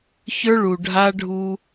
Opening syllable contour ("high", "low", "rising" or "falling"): high